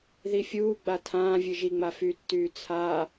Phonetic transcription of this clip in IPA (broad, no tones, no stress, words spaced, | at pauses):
ðifʲuː ɡ͡batʰãː vʲɨʒiŋ͡ma fytːyː t͡sʰa